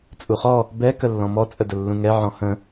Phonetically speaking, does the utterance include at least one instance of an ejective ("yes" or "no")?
yes